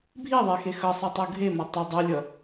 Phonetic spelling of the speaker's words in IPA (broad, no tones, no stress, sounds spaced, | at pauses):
bʱ i ðˤ e x e x ʌ sˤ ɛ tˤ u ɡʱ e m ʌ tˤ ɛ dˤ ɛ lʲ ʌ